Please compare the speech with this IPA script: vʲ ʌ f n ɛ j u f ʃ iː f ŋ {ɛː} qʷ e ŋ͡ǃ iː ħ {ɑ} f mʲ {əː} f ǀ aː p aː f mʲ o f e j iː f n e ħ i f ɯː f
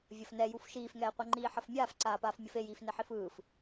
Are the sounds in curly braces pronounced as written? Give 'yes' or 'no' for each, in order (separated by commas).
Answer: yes, no, no